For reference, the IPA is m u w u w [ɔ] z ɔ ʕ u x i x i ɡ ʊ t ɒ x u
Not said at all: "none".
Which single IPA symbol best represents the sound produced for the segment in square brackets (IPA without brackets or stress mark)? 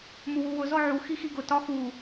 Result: ʊ